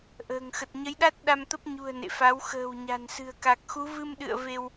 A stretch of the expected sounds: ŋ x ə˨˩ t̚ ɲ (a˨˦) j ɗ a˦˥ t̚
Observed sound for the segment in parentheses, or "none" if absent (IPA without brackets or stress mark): ə˨˦